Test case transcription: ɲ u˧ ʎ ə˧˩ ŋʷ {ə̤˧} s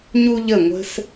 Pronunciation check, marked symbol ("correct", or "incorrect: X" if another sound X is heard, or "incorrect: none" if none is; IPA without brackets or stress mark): correct